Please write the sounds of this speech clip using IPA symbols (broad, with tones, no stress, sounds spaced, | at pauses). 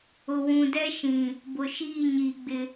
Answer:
ʊ˨ w ũ˨ d ɛ˦ ʃ ĩ˨ | b ʊ˨ ʃ iː˦˨ ɲ iː˨ ɡ͡b ɪ˦